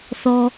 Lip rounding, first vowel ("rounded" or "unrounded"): rounded